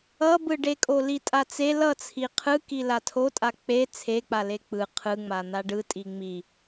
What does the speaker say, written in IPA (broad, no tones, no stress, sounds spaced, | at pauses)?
ʌ b ɯ ɖ e kʼ o l i tʼ a t͡s e l ʌ t͡sʰ i qʰ ɯ k i l a tʰ o tʼ a k͡p e t͡sʰ e k͡p a l e k͡p ɯ qʰ ɯ ŋ͡m a n̪ a ɖ ɯ tʼ i ŋ͡m i